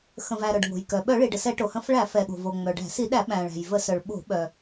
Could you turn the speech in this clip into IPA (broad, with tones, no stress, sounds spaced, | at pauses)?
x ə̃˩ v æ˩ ɾ œ˩ ɖ ŋ o̤˩ j k œ˩ ɓ œ˧˩˧ ɭ i˩ ɖ ə˩ s ɛ˧˩˧ ʈ o˩ h ə̃˧˩˧ f ɭ æ˧˩˧ f ɛ˩ ɠ o̤˩ v o˩ ŋ͡m œ˩ ɖ æ̤˧˩˧ s i˧˩˧ ɗ æ˧˩˧ ɓ æ̃˩ ɭ æ̤˩ j v ə˧˩˧ s œ˩ ɭ ɓ o̤˧˩˧ ɓ œ˩